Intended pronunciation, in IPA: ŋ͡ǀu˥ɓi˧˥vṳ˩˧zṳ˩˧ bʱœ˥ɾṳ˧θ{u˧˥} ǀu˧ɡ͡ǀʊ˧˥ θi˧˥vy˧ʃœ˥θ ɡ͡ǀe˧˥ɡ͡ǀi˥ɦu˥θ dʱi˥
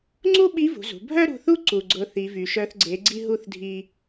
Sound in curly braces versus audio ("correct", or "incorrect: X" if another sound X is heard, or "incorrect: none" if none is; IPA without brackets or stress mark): incorrect: u˥